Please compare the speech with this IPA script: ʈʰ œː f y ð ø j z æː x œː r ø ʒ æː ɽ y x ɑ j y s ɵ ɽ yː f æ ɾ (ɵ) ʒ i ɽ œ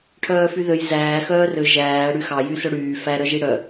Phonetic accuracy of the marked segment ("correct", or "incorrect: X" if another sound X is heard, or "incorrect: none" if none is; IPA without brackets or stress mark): incorrect: œ